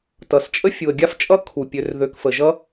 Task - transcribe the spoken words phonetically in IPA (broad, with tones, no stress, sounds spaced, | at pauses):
t ʌ˩ s t͡ʃʼ ə˦ fʲ u˩ ə̯ ɡʲ a˥ f t͡ʃʼ ʌ˥ kʰ u˩ pʲ ø˨ r ð ø˨ k f ə˩ ʒ ʌ˥